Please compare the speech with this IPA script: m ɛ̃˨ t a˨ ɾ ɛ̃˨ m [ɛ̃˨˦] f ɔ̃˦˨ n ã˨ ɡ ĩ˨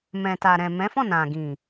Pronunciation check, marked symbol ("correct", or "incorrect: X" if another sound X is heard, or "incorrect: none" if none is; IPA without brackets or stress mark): correct